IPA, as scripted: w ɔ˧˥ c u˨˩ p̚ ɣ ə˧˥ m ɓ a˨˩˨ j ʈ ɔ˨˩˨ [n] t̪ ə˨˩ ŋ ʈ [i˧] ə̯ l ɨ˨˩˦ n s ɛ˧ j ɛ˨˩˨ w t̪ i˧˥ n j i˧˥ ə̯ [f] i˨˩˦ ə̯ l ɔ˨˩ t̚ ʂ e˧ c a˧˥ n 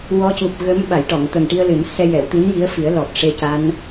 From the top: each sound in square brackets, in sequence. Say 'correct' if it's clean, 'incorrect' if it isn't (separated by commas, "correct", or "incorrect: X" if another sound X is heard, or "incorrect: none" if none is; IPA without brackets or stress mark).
incorrect: ŋ, correct, correct